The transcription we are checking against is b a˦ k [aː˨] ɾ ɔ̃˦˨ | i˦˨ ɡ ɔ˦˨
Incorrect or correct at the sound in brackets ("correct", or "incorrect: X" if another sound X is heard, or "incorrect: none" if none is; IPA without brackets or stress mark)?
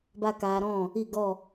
incorrect: aː˧